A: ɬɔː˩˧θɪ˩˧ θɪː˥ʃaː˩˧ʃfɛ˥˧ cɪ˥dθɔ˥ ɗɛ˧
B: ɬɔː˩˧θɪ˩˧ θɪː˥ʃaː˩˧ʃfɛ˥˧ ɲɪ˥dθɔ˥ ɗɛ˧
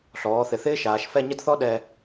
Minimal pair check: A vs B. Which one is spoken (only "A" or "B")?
B